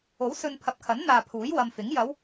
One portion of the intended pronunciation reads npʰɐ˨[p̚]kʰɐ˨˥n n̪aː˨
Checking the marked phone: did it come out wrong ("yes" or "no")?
no